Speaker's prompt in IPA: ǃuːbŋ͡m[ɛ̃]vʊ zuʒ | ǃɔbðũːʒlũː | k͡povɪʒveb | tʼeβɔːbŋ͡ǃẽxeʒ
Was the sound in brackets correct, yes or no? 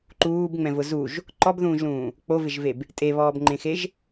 yes